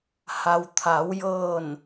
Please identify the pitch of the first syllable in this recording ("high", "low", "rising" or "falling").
low